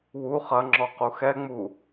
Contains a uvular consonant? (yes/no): yes